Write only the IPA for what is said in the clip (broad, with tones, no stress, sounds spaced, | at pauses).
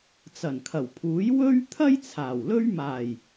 t͡s ɐ˨˩ n kʰ ɐ˨˩ w pʰ uː˨˥ j w ɵ˥ ɥ t̪ʰ ɐ˥ j t͡sʰ aː˨˩ w l ɵ˥ ɥ m aː˨˩ j